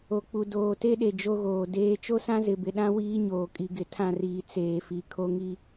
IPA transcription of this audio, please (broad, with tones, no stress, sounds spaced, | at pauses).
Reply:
o˨ k͡p u˨ d oː˨ t e˦ ɗ e˨ d͡ʒ o˦ ɣ oː˨ d eː˦ t͡ʃ o˦ s ã˦ z ɪ˨ b ɪ˨ ɗ ã˦ w iː˦ ɲ oː˨ kʼ i˨ ɡ ɪ˨ tʰ ã˦˨ r iː˨ t͡s eː˨ f i˨ kʰ o˦ ŋ i˦